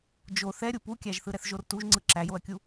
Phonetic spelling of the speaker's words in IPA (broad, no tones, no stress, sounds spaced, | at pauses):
d͡ʒ o θ ɛ ɾʲ u p u kʲ æ ʒ θ ɯ ɾ ɛ θ ʒ o r t u ʒ ŋ͡ǀ ɯ ǁ æ j o ɐ̯ kʲ u